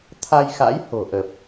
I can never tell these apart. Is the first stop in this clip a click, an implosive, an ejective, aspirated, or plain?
aspirated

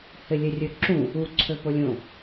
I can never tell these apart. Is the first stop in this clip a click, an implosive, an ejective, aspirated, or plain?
click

